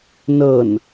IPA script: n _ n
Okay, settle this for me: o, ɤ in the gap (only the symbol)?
ɤ